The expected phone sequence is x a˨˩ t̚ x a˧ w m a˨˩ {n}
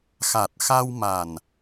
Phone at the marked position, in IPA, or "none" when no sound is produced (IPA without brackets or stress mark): n